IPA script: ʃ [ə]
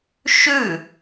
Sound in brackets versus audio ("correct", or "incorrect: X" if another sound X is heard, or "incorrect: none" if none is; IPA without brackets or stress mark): incorrect: ʉ